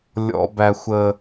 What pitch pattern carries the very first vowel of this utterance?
high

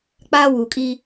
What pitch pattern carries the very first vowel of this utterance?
high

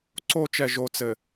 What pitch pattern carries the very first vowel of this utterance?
high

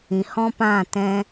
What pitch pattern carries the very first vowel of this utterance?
low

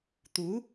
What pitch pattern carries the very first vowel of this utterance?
rising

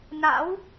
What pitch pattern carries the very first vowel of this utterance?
rising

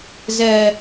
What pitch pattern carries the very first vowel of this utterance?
low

